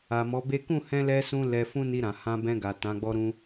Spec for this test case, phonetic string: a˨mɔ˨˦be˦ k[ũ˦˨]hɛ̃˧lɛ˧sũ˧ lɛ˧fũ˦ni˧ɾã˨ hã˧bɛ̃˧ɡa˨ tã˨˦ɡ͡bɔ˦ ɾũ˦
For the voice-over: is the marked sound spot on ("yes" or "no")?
yes